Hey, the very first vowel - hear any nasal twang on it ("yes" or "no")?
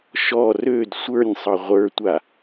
no